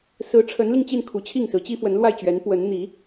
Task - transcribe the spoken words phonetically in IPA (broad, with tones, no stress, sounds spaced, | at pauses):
s ɹ̩˧˥ ʈ͡ʂʰ ə˧˥ n l i˧ ŋ t͡ɕ i˥˩ n kʰ u˧˥ t͡ɕʰ i˥˩ ŋ s ɹ̩˧˥ t͡ɕ i˥ f w ə˧˥ n l w a˥˩ ɪ̯ t͡ɕ ɥ ɛ˧˥ n p w ə˧˥ n n̪ i˧˥